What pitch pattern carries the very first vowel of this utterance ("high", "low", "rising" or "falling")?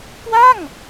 falling